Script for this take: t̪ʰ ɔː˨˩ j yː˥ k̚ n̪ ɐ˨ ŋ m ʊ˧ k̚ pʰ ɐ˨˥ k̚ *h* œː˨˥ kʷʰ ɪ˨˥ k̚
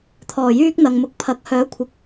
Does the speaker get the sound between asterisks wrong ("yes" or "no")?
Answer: no